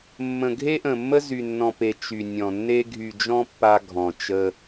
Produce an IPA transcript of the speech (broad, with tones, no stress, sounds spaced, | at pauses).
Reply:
mː ə̃˨ ɡʱ e˦ ʔ ə̃˨ mː ə˦ z y˨ nː ɔ̃˨ p e˨ t͡ʃ y˨ nʲ ɔ̃˨ nː e˦ ɡʱ y˨ d͡ʒ ɔ̃˦ pː a˦ ɡʱ ɔ̃˨ t͡ʃ ə˦